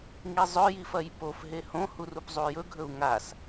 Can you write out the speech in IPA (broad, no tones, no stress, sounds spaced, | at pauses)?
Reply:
ŋ i zˤ ɵ j i f ɐ j p o f ɦ e h õ h u r u p zˤ u j ɵ ɡʱ ɵ u̯ ŋ a s